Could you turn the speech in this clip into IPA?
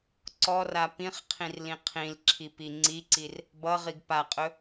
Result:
ǀ ɔ r a p ĩ χ qʰ ĩ r l ĩ qʰ ĩ l ǁʰ i p i ŋ͡ǀ i ǀ i r | b ʌ ʁ i ɡ p a qʼ ɵ

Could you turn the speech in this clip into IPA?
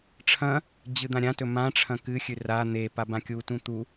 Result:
ʈ͡ʂʰ ɐ̃ | d͡ʑ ɨ d̪ ã ɾʲ ã t ɵ m ã ʈ͡ʂʰ ɐ̃ k ɨ xʲ ʉ r a n̪ e p a b ã kʲ u t ũ t̪ u

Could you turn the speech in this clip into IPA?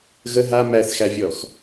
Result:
ɣ ə ɦ a m æ θ x æ vʲ ɔ x

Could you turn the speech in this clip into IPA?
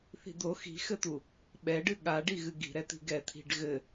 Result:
θ i̤ d̪ o x i̤ x ɘ t̪ u | ɓ ɛ ɖ ɨ ɠ a ɖ i ɣ ɨ ɡ i̤ ɾ ɛ t̪ i̤ ɡ ɛ t̪ʰ i̤ ɖ ɣ ɘ

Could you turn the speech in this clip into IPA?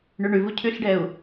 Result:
ɳ ʉ ɳ ʉ v u cʰ ʉ ɬ ɖ ɛ u̯

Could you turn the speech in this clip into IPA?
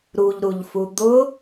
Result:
ɾ u ʎ ɾ u ʎ f u d̪ ʊ

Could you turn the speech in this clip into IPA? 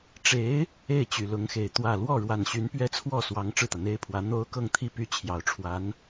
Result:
ʈ͡ʂ e˧˥ ɪ̯ | e˥˩ ɪ̯ t͡ɕ y˨˩ l ʊ˧˥ ŋ x e˨˩ ɪ̯ t̪ w ä˥˧ l w ɔ˥˩ ɻ w a˨˩ n ɕ y˧˥ n p ɥ ɛ˥ t͡sʰ w ɔ˥˩ s w ɑ˧˥ ŋ ʈ͡ʂ ɻ̩˥˩ t̪ ä˩ n̪ e˥ ɪ̯ pʰ w ä˧˥ n̪ o˥ ʊ̯ k ɤ˥˧ ŋ t̪ʰ i˥˩ p y˥ t͡ɕʰ j ɑ˨˩ ʊ̯ ʈ͡ʂʰ w a˧˥ n

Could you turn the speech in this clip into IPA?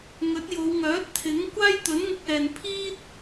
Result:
ŋ ɵ˨˥ t̚ j o˨˧ w ŋ œː˨˥ t̚ t̪ʰ ɪ˨˥ ŋ kʷ aː˥ j t̪ ɵ˨˥ n ŋ ʊ˧ k̚ ɛː˨ n pʰ iː˥ t̚

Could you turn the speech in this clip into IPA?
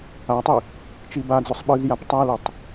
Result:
a tˤ i | t͡ʃ i b a d͡z o sˤ ɓ ɯ z j a p tˤ a l e tˤ

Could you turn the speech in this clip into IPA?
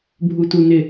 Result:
bʱ u t u n ɪ

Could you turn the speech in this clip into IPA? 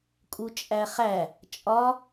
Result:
kʼ u t͡ʃʼ æ χ æ | t͡ʃʼ ɒ

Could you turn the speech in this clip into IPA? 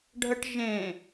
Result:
ɖʱ ə ʈ ʒ ẽ

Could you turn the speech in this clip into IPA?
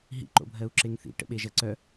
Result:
ɦ ḭ ǃ o̰ bʱ ɜ u̯ ǁ e ŋ θ ḭ ʈ ə̰ ɓ e ʒ ɜ ǀ œ

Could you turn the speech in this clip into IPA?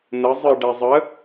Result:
n ə zˤ ɨ ɖ ɛ zˤ ə

